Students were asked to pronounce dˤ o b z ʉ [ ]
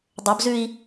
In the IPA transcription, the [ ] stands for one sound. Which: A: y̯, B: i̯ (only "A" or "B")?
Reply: B